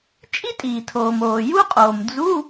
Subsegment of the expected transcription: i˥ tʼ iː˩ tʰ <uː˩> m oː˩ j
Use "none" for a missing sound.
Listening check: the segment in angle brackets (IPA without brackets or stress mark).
oː˩